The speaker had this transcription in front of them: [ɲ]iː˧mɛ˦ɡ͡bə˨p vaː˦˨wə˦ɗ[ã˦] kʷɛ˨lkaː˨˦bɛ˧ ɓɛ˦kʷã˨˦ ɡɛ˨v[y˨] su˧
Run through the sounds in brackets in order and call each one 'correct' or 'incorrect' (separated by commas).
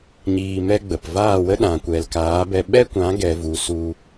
correct, incorrect, incorrect